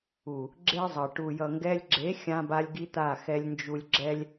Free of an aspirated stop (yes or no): yes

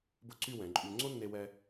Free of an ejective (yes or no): no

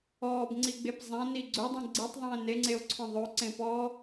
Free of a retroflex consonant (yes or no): yes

